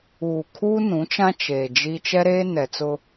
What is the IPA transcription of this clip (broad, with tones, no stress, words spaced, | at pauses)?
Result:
uː˨kʰuː˦ nũ˨˦t͡ʃã˦ t͡ʃeː˨d͡ʒi˦ t͡ʃɛ˦ɾeː˦ nɛ˨t͡sʊ˦